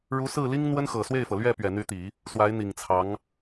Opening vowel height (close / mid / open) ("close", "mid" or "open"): close